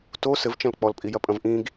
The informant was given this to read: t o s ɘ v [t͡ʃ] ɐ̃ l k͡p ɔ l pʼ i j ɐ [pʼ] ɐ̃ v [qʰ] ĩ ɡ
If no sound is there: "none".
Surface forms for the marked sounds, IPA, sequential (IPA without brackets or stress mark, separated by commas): t͡ʃ, pʼ, ʔ